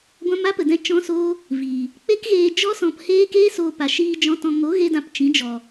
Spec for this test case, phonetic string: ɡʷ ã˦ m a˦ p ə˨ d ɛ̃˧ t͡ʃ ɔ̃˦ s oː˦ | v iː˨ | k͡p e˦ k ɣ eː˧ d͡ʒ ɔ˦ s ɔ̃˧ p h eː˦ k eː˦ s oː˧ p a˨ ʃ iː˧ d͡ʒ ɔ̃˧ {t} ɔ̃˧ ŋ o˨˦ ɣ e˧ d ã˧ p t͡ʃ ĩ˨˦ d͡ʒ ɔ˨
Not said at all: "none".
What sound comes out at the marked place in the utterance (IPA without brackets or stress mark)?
t